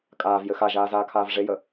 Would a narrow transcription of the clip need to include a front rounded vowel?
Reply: no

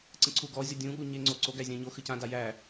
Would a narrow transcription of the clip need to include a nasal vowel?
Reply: yes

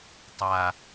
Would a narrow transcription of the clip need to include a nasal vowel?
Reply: no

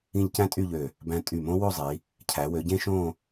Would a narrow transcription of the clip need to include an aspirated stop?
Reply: yes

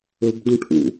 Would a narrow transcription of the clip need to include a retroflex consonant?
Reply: yes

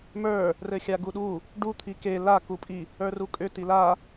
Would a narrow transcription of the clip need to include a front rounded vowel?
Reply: yes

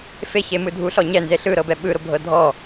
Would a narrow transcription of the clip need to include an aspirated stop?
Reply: no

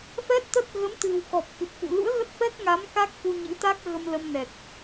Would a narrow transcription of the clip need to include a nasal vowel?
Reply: no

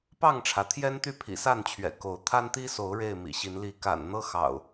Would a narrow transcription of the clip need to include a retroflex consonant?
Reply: yes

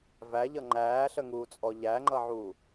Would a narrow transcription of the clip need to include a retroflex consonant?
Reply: no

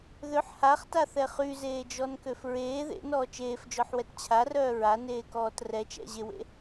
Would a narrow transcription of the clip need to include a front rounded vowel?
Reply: yes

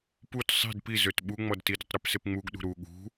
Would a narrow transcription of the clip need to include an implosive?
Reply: yes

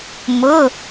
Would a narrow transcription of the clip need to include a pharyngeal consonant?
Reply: no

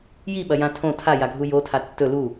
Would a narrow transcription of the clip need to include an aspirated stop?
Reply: yes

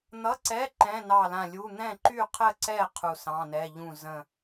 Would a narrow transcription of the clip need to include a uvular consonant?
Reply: yes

